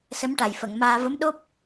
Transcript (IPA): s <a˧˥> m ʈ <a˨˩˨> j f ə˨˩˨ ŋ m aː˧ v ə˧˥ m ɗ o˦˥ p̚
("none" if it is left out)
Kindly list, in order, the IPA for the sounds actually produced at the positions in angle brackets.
ə˧˥, a˨˩

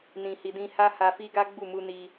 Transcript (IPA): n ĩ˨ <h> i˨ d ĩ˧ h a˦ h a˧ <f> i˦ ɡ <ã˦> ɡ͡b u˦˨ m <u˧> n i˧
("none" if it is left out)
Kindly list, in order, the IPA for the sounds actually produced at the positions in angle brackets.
h, f, a˦, u˧

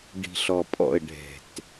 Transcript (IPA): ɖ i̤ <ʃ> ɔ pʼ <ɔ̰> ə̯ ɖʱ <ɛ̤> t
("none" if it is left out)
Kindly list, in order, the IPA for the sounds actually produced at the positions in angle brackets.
ɬ, ɔ̰, ɛ̤

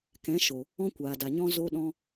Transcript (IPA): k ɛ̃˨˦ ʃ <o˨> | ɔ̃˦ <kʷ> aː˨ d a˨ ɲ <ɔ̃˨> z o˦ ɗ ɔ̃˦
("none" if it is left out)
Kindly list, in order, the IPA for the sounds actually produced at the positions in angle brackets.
o˨, kʷ, ɔ̃˦

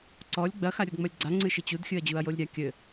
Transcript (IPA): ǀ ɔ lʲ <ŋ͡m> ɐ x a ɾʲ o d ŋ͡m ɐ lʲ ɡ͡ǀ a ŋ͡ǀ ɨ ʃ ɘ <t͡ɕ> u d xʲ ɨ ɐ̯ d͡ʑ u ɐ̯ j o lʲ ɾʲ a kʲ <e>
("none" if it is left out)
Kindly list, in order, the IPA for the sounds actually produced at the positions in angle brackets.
ɡ͡b, t͡ɕ, ɘ

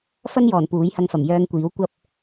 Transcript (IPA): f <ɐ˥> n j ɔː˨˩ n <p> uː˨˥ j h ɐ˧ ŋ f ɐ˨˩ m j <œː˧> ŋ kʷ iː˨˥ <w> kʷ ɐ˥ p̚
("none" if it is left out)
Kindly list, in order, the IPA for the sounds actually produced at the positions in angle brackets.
ɐ˥, p, œː˧, w

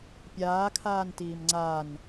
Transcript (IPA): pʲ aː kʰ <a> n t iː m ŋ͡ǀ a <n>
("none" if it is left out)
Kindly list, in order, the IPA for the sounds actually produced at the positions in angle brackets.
aː, n

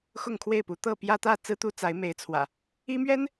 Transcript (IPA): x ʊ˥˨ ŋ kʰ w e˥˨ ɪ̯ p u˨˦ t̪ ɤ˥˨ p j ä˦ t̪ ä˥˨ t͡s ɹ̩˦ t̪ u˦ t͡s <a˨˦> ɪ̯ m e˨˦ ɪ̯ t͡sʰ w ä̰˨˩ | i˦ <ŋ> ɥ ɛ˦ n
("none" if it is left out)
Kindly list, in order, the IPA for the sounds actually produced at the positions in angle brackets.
a˨˦, m

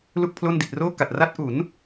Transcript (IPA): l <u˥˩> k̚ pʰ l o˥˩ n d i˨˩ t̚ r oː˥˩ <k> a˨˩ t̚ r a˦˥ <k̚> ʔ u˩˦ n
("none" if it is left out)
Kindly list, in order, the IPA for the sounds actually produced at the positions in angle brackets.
u˥˩, k, t̚

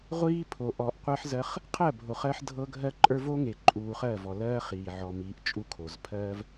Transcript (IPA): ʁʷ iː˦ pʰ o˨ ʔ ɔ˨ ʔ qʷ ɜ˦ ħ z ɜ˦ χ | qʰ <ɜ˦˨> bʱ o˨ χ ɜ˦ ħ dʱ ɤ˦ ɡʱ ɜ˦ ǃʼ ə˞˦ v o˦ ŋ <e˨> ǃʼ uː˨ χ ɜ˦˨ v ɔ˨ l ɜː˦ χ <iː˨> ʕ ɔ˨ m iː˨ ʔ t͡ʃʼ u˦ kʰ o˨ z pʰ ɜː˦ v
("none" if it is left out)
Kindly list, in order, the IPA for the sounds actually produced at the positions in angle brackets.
ɜ˦˨, e˨, iː˨

